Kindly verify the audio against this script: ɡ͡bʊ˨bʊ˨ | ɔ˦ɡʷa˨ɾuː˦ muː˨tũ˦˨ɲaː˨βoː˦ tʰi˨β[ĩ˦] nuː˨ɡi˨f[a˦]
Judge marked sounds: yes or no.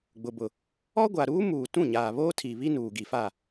no, no

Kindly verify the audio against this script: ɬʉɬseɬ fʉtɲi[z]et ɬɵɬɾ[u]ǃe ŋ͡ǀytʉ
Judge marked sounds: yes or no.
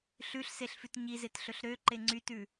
yes, no

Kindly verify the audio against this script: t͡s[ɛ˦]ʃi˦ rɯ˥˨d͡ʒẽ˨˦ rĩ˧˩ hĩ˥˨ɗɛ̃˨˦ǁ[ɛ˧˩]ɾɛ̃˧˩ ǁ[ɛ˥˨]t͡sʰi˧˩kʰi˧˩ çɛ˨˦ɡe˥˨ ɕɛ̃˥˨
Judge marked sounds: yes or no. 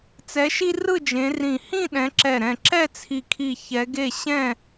no, yes, yes

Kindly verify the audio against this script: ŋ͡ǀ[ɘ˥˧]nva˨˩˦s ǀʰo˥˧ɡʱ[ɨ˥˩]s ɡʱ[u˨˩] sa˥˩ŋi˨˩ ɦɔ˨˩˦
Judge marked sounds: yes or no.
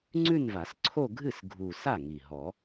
no, yes, yes

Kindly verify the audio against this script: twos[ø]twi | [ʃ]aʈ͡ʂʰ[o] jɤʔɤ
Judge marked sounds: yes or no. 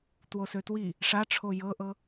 yes, no, yes

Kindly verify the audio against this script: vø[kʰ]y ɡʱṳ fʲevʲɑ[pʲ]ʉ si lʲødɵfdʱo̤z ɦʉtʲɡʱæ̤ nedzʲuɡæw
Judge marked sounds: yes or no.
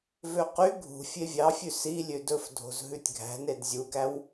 no, no

